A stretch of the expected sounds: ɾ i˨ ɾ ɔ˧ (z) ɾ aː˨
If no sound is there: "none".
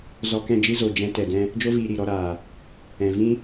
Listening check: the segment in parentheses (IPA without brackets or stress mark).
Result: none